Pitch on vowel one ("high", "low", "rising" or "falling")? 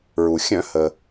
low